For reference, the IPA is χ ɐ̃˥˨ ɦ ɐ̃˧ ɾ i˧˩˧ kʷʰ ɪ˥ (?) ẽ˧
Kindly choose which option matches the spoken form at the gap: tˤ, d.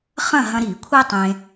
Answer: tˤ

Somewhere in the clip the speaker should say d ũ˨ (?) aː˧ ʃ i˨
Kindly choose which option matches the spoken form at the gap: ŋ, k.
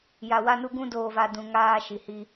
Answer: ŋ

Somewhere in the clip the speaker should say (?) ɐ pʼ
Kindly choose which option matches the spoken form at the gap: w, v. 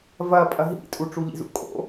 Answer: v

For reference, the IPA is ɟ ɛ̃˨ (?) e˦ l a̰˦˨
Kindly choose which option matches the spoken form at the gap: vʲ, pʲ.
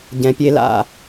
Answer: pʲ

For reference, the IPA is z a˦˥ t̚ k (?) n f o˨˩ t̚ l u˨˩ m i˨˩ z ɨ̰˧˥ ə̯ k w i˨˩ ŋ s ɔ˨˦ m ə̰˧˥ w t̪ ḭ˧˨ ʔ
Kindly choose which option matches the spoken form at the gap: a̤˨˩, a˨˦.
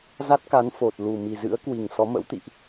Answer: a˨˦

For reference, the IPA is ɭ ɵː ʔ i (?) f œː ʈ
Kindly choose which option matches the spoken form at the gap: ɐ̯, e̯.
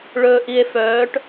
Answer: e̯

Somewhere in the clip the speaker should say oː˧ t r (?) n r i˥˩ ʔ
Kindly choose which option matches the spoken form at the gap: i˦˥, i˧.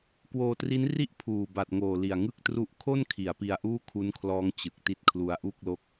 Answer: i˦˥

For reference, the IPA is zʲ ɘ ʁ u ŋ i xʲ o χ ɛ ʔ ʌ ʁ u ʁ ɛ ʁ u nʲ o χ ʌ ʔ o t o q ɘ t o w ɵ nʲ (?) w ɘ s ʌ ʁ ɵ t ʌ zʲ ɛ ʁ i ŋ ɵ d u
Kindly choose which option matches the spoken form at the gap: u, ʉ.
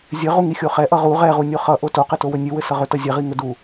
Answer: ʉ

